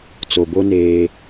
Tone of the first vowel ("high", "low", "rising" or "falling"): low